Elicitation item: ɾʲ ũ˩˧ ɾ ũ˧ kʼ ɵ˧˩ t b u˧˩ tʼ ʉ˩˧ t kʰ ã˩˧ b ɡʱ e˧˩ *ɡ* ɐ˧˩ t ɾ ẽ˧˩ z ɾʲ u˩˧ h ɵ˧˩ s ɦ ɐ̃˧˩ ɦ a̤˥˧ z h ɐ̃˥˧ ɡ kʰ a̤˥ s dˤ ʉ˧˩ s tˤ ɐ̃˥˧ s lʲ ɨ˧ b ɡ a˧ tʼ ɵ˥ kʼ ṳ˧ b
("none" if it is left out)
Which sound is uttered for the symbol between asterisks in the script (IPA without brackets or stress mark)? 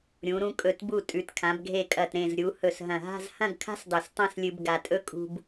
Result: kʼ